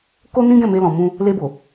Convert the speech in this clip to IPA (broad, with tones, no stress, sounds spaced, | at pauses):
k o˦ n ĩ˦ ɡ ɛ̃˦˨ m e˧ l ɔ̃˨ m ũ˧ | l e˧ b o˨